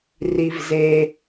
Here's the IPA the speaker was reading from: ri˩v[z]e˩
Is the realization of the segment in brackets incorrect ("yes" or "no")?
no